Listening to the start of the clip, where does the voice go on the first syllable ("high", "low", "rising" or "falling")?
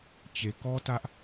low